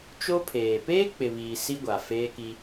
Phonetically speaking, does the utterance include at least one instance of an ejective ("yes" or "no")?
no